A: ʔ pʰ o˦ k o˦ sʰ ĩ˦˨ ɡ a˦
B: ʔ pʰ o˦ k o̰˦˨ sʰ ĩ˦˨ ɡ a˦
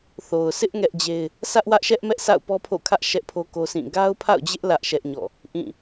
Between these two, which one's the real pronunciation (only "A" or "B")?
A